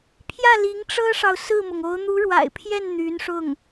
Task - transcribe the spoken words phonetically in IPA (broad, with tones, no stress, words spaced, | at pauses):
pʰjä˥˩ li˧˥ŋʈ͡ʂɤ˥ʂɑ˨ʊ̯ sɹ̩˥˩mʊ˩ŋo˧˥ʊ̯ n̪u˧˥ɻwa̰˨˩ɪ̯pʰjɛ˥˩n n̪y˧˥nʂʊ˥˩ŋ